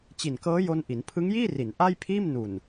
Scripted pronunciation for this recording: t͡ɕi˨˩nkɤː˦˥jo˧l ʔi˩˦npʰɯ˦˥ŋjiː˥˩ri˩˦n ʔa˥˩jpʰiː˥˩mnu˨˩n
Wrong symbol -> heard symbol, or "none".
l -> n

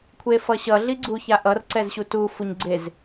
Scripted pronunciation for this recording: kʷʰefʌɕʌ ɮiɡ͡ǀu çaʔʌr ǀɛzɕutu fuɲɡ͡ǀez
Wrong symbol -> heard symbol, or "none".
none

